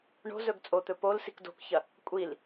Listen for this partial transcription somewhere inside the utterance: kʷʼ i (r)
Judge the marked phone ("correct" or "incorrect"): incorrect